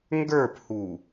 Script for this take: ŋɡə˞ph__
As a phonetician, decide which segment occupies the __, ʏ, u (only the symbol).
u